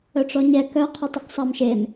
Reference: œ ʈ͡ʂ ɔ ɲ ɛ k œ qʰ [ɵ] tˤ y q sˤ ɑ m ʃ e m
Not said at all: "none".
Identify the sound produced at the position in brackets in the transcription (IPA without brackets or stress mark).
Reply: ɵ